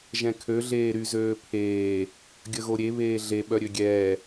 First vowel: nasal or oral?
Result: nasal